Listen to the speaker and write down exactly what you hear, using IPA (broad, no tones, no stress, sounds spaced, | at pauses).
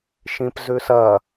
ʃ ĩ p z ʉ s ɐ